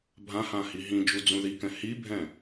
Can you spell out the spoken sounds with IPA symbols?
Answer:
bʱ ã h ã h i ɦ ĩ d͡ʒ u d͡z ũ ð i k ɛ̃ h i bʱ ɛ̃

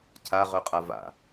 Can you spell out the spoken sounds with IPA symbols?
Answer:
cʰ a ʁ œ qʼ a v a̰

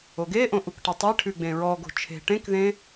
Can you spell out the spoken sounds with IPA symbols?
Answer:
o ɡ e ʔ õ ʔ u k ʈ ɘ tˤ e ʈʰ ʉ ɡ͡b ẽ ɹ ɔ ɡ o̤ t͡ʃʰ e̤ ʈ ẽ k ð ẽ

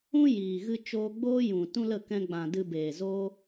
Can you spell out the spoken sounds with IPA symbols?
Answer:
ũ˦ j iː˨ ɣ ɨ˧ t͡ʃ oː˧ ɡ͡b oː˦ j ũ˨ t ũ˦ l ə˦˨ k ɛ̃˧ ɡ͡b ã˨ d ɨ˧ b eː˨ z oː˦

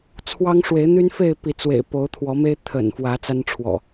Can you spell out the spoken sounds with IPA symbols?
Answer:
t͡sʰ w ɑ˦ ŋ ʂ w e˨˦ ɪ̯ n̪ y˦ n f e˥˨ ɪ̯ p i˨˦ t͡s w ḛ˨˩ ɪ̯ p o˨˦ ʊ̯ t̪ʰ w ɔ˨˦ m e˦ ɪ̯ t̪ʰ ə̰˨˩ n f w ä˨˦ t͡s a˦ n ʈ͡ʂʰ w ɔ̰˨˩

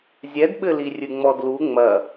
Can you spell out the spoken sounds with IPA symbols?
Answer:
zʲ ɛ d ɓ ɘ l i rʲ ɨ ŋ͡m ɔ d l u ŋ͡m ɐ

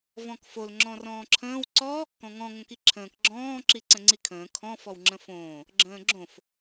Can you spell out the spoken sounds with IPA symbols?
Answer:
v ɔ̃ k f o l ŋ͡ǁ ɔ̃ r ɔ̃ː ǁʰ ə̃ː w ǀ ɔ | k ɔ̃ ŋ ɔ̃ ŋ õ k i ǁʰ ə̃ː k ɡ͡ǁ ɔ̃ː ǁ i ǀ ə̃ ŋ͡ǀ i kʰ ə̃ː kʰ ɔ̃ f ɔ w ŋ͡ǁ ə̃ f õː | ɡ͡ǁ ə̃ː ɡ͡ǁ õ f

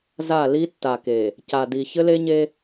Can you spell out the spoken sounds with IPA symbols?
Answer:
z a˦˨ l i˦ tː a˨ k e˨ | c a˨ d i˨ ç ɘ˦ l e˦ ɲ e˦

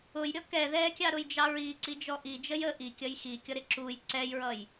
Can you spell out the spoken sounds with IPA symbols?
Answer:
ʊ j ɾʲ ɔ k ɛ ð ɛ kʲ ɑ ɾ ʊ j d͡ʒ ɑ ɹ i ǀ i d͡ʒ ɔ ʔ i d͡ʒ ə j ə ʔ i kʲ ʌ j x i kʲ ɔ ɾ ɪ ǁ u j ǀ ɛ j ɹ ʌ j

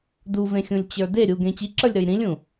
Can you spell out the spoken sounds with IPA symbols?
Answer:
d u v ẽ xʲ ũ lʲ t͡ɕ ə˞ d e ɾʲ u ɡ ẽ t͡ɕ i ǁ ə˞ lʲ ɾ ə˞ j ɾ ĩ lʲ ũ

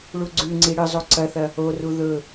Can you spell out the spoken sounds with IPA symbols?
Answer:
ɭ u ɡ͡ǀ ʉ ŋ͡ǀ i ɽ ɨ zˤ o ǀ ɐ θ ɐ | o r u ð ɵ

